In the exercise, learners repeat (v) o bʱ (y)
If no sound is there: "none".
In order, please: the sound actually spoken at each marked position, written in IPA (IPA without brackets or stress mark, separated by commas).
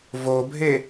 v, e